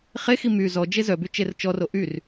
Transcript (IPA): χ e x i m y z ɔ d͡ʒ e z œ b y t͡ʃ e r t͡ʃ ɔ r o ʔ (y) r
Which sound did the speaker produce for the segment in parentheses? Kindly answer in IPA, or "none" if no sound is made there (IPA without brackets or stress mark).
y